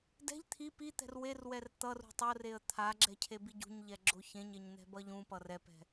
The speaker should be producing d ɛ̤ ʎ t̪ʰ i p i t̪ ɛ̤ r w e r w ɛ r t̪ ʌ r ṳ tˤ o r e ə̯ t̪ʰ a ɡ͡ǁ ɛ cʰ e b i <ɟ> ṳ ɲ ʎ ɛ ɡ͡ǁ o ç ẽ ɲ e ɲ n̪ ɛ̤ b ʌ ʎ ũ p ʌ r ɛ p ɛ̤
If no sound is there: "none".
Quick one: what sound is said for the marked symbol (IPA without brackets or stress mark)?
ɟ